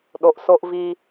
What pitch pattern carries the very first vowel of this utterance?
low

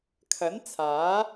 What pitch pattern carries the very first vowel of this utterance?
rising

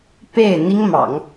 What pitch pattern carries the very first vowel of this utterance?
falling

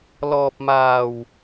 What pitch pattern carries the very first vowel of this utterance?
low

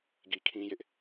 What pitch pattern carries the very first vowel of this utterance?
low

